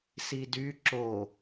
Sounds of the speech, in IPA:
sidy ǁo

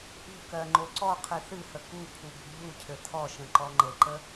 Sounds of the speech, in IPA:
ʔṳkɜ ŋ͡ǃoǀɔ qʰɨθɨhə kupʰu bi̤ʎucʰɘ tʰɔʃə̃ ǃɔŋ͡ǃɘǃə

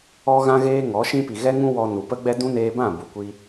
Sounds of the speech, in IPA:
ɔ˦ɣã˦ɣeː˦ ŋɔ˨˦ʃĩ˦ pi˨ɣɛ˦ŋũ˦ wɔ˧nu˨pə˦ɡ͡bɛ˦ dũ˦neː˧bã˦˨ bu˨kʷi˧

